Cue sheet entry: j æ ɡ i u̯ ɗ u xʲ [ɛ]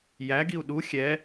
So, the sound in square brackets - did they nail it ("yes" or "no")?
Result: yes